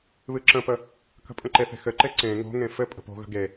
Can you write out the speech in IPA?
βɨǁə̃pə | kə̤pʼə̃ǃeθe̤ xɘǃe ǀẽ ŋo̤ŋẽ fɘ pʼə̤po̤ɣə̤ ɡe

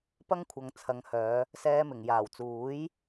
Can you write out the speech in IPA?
pɐ˥ŋkʷʰɐ˨ŋ t͡sʰɐ˨˧ŋhœː˨˧ | sɛː˧mɪ˨˩ŋ jaː˨˩wt͡suː˨˥j

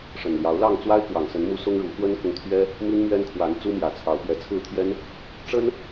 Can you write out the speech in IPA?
ʂə˨˩nljɑ˨˦ʊ̯lɑ˥˨ŋ t͡swa˦ɪ̯kwɑ˨˩ŋsə˨˦nmu˨˦ sʊ˦ŋɻu˨˦ xwə˦nkʊ˨ŋ t̪ʰɥɛ˦ | mi˦nmɥɛ˦nkʰwa˨˦n t͡su˦mjä˨˩ t͡sʰɑ˨˦ʊ̯pɥɛ˨˦t͡sʰɹ̩˥˨t̪ʰjɛ˦n | ʈ͡ʂə˦n

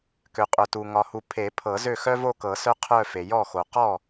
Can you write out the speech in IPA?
kø˨qʼœ˨tu˨ ŋɒ˨hu˨ pʰe˨˩˦pʰɤ˨˩˦ zø˥˩xœ˥vo˥˧kɤ˨˩˦ sœ˥qʰœ˥˧fe˨ jɔ˥˩xo˨ qɔ˥˩

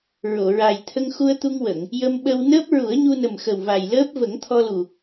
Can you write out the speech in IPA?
ɹo˨˩˨ɹa˨˩j t̪ʰə˧ŋxu˧ə̯t̪u˧ŋwə˨˩˨ŋ | jə˧mɓə˧wnəː˦˥p̚ ɹu˨˩˦ə̯ɲu˧nə˨˩mxə˨˩w va˨˩jləː˦˥p̚ və˨˩˦ŋt̪ʰɔ˧lu˨˩

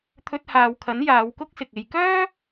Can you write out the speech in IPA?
t̪ʰɵ˧t̚haː˨wkʰɐ˨˥n jaː˨˧wkʊ˥k̚sɪ˨k̚ e˨jkœː˥

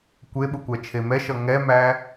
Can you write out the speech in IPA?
kʷeɓukʷæt͡ʃʰe mɛʃʌ ŋɛmæ

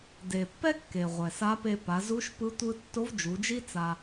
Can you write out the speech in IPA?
de˩pːɛ˥ kːe˩ʁʷɛ˩ sa˧˥pe˧pa˩˧ zu˧˥ʃpɯ˧˥ tʷɯ˧tːo˧˥v d͡ʒu˩˧d͡ʒi˥ t͡sa˧

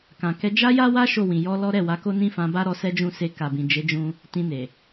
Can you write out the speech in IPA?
kã˨kɛ˧ d͡ʒa˦ja˦wa˦ ʃo˦˨wĩ˨ jɔ˧ lɔ˦ ɾɛ˦˨wa˧ko˦ nĩ˦fã˧ba˦ ɾɔ˧sɛ˦d͡ʒũ˦˨se˧ ka˨bĩ˨ d͡ʒe˨˦d͡ʒũ˧ | tĩ˧ne˨

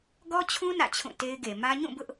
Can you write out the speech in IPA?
ɡɔ˦t͡ɕʰũ˦ nä̰˦˨t͡ɕʰũ˦˨te˦ɪ̯ɡe˨ mä˦ ɲũ˦˨bʊ˦ʔ

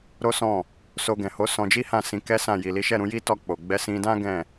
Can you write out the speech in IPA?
ɾo˦sɔ̃˦˨ | so˧ɡɛ̃˨ ho˨˦ sɔ̃˧d͡ʒi˦hã˦˨sĩ˨˦ kɛ˦sã˦˨ ji˨li˨˦ʃɛ˦˨ ɾũ˨˦ji˦ tɔ˦˨k͡po˨ ɡ͡bɛ˨˦sĩ˧dã˦ ɡɛ̃˦˨

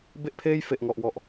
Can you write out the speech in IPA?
be˥˩ʔpʰeː˥˩j fe˨˩ʔŋɔ˨˩ʔwɔ˨˩ʔ

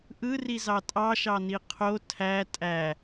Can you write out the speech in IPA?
ʔɯrizɑ tʼɑʃɑni qʰo tʰæ tʼæ

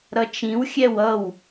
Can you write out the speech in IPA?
ɾʌt͡ʃĩw xʲɛwʌw

